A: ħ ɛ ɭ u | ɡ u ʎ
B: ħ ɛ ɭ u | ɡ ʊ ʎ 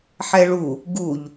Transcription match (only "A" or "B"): A